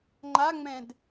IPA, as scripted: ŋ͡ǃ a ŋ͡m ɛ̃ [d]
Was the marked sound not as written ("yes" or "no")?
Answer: no